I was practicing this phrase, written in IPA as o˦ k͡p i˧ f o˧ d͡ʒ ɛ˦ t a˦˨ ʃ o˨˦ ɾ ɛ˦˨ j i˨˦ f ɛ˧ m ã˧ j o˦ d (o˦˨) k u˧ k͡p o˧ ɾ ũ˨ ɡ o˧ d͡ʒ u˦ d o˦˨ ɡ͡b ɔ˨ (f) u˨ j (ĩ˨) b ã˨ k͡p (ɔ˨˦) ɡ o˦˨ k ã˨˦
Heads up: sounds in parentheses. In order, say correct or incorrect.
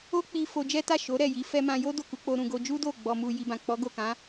correct, incorrect: m, incorrect: i˨, correct

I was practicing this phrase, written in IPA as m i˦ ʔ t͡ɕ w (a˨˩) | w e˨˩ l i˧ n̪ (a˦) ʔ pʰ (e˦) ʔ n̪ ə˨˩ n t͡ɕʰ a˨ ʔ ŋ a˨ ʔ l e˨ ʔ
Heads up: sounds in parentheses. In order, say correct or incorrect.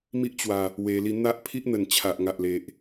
correct, correct, incorrect: i˦

